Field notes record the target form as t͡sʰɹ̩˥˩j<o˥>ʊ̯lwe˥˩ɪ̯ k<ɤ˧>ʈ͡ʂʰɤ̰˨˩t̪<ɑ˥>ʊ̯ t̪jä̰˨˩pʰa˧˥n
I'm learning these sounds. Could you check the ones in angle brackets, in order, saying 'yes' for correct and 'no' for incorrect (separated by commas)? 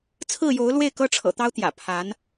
no, no, yes